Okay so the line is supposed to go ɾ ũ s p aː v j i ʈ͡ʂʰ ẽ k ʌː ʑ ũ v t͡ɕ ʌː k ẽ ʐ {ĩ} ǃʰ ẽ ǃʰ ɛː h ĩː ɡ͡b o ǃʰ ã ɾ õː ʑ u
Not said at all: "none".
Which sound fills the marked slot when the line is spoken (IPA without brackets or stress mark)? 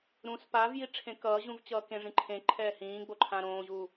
ĩ